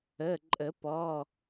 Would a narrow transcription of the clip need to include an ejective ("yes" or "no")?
yes